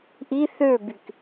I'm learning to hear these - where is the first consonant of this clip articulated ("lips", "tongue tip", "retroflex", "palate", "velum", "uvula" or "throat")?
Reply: throat